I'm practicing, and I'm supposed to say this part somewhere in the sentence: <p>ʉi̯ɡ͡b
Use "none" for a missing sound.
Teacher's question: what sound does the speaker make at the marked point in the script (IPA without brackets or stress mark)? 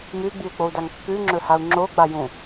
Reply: m